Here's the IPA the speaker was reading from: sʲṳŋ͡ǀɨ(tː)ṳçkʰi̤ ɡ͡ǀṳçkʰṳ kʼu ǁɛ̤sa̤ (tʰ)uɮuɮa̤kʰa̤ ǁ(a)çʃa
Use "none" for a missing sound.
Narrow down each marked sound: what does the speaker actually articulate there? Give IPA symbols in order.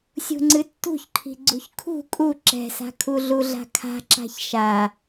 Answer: tː, kʰ, a̤

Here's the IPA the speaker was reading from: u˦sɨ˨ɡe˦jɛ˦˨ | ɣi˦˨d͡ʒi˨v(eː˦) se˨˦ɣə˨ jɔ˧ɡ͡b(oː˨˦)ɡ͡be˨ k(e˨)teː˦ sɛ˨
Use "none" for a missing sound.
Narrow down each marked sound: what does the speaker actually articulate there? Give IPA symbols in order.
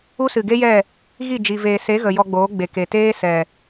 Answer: eː˨, oː˨˦, e˨

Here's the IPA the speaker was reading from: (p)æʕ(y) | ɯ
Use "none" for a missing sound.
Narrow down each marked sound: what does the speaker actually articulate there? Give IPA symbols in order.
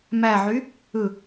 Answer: m, y

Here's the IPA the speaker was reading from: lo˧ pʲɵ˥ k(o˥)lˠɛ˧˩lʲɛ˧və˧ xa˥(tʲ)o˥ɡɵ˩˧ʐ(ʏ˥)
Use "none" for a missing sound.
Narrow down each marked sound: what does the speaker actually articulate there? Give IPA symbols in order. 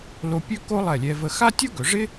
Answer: o˥, tʲ, ɪ˥

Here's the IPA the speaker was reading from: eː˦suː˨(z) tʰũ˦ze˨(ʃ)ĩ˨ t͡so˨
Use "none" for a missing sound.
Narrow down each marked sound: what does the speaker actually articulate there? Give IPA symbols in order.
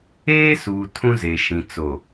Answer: none, ʃ

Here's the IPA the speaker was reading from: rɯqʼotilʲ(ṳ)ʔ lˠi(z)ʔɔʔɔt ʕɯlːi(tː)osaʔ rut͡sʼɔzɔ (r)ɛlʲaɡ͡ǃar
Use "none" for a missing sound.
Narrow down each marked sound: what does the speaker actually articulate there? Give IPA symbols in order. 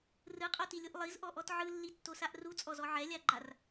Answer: u, z, tː, ʕ

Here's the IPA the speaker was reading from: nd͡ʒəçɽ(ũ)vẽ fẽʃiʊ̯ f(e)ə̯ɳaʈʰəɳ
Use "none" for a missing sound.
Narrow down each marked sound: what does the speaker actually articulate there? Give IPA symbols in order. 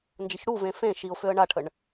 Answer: u, ø

